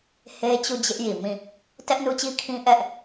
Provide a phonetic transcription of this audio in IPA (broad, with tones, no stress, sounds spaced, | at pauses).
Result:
h e˦ t͡ɕ u˦˨ d͡ʑ ɪ˦ ʔ j i˨ m ĩ˦˨ | t ɛ˦ ʔ n u˦ t͡ɕ i˦ kʰ ĩ˦ ʔ ɛ˦ ʔ